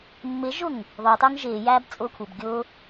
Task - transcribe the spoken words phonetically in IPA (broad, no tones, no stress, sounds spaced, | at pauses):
mː ɪ ʒ ʊ ŋ | ðˤ ʊː tˤ ʊː ŋ ʒ ɪː j æː b t͡sʼ ʊː kʷʰ ɪ b ɡʲ ʊ